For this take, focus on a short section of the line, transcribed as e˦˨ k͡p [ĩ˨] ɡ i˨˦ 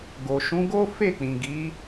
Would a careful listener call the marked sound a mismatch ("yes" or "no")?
no